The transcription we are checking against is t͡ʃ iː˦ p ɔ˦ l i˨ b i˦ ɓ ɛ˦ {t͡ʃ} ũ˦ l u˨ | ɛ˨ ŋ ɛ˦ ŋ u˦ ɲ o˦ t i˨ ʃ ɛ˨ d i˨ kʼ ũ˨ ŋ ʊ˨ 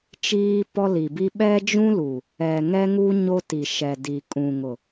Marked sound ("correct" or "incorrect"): incorrect